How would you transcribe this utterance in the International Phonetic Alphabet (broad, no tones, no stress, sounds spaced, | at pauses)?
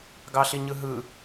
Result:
ɡ ɑ ɬ i ɲ ɯ ɦ ɯ